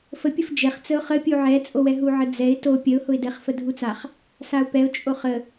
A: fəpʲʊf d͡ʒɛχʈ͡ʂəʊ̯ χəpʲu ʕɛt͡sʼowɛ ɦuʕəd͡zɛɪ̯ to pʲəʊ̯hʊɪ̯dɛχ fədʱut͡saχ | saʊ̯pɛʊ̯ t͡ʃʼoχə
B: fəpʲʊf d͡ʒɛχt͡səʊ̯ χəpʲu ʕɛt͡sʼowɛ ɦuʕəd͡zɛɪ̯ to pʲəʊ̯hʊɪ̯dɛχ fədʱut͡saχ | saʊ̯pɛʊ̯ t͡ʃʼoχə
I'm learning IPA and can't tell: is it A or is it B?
B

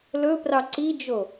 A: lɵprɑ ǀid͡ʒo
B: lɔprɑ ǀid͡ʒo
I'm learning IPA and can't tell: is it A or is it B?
A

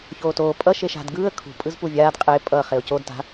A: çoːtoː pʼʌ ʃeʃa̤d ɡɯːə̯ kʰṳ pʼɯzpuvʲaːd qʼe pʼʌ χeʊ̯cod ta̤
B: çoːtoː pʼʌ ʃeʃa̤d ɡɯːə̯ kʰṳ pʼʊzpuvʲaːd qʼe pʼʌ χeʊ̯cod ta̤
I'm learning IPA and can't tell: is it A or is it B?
A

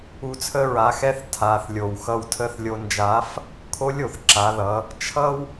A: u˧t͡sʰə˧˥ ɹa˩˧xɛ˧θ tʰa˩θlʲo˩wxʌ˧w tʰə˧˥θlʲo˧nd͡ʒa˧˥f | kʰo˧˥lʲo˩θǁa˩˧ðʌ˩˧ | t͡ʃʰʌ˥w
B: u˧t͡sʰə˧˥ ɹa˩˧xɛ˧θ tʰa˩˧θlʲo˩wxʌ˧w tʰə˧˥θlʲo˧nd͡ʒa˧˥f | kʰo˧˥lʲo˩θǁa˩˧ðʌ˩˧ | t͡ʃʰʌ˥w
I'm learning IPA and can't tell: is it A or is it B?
B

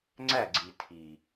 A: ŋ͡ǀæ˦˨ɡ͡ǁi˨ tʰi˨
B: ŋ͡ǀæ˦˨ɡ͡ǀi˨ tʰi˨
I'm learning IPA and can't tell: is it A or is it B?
B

